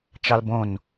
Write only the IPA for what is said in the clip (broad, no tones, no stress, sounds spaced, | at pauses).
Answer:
t͡ʃ ɑ l b õ n